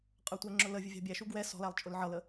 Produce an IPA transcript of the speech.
qʼ ə˞ tʷ æ ŋ͡ǁ ʊ l ə vʲ ə vʲ ɑ̤ bʲ æ ʃ u ɡ w ɛ s ɔ̤ l æ lˠ t͡ʃʼ ʊ l ʕ ʌ l ə

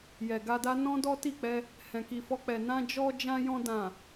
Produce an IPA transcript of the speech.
j ɛ˨ ɡ a˧ d a˦ n ɔ̃˦ d ɔ˦ t i˦˨ k͡p ɛ˧ | h ɛ̃˨ k i˨ f ɔ˧ k͡p ɛ˨ n ã˧ d͡ʒ ɔ˧ d͡ʒ ã˧ j ɔ̃˧ d ã˨

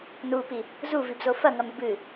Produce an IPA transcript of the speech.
n u p i | z u v i b z o f ɐ ŋ ɐ m ɨ b ɨ

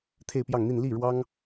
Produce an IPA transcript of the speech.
t̪ʰ e˥˧ ɪ̯ p j ɑ˥˧ ŋ n̪ i˥˧ n l i˥˩ ɻ w ɑ˥ ŋ

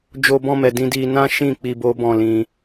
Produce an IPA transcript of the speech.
d͡ʒ o˧ b ɔ̃˧ m ɛ˨ d ĩ˧ d i˧ n ã˦ ʃ ĩ˦˨ k͡p i˧ b o˦ b ɔ̃˦˨ l ĩ˧

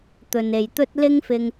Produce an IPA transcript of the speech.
t̪ ɵ˨ n e˨ j t̪ ɵ˥ t̚ l ɪ˥ ŋ f ɪ˧ ŋ

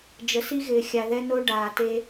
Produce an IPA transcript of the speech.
d͡ʒ ə˨ s i˧ ɣ ɪː˨ xʲ a˨ ð ɛ˧ n o˧ ɖ aː˨ t e˧

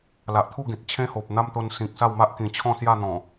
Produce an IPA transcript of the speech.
l a˨ ʔ t̪ʰ u˥˧ ɡ ẽ˨ t̚ t͡ɕʰ ẽ˦ h o˨ p̚ n̪ a˦ m t̪ o˧ n s ĩ˨ k̚ s a˥˧ w m a˦ ʔ k ĩ˨˩ t͡ɕʰ ɔ̃˥˧ s j a˥˧ n̪ ɔ̃˨˩

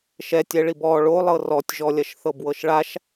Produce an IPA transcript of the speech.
ʃ ɛ tʲ ɛ ɭ i b ɔ ɭ o lˠ ɤ r ɔ tʲ ʒ ɔ lʲ ɐ ʃ θ ɤ b w ɤ ʃ ɭ a ʃ

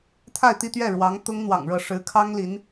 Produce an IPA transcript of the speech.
t̪ʰ a˥˧ ɪ̯ t̪ i˥˧ t̪ ɥ ɛ˥˩ ɻ w ɑ˧˥ ŋ t̪ ʊ˥ ŋ n̪ w ɑ̰˨˩ ŋ ɻ ɤ˥˩ ʂ ɻ̩˧˥ kʰ ɑ˥ ŋ l i˧˥ n

